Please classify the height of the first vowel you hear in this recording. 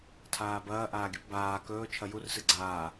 low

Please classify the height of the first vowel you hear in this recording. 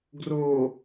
mid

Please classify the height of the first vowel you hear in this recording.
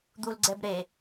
high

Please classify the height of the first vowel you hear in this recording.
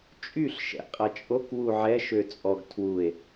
high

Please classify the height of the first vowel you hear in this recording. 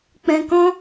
mid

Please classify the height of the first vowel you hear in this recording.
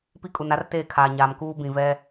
high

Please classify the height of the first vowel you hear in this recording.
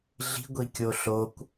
high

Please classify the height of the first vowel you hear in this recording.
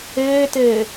mid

